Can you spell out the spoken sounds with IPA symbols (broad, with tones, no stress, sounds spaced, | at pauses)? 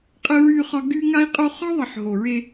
qʼ ə˦ ɹ y˦ χ ɒ˦ ɡ y˦ ŋ a˦ i̯ qʼ o˦ χ ɒ˦ ðˤ ə˨ ħ ɦ o˨ ɹ e˦